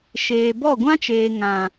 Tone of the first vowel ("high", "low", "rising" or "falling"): low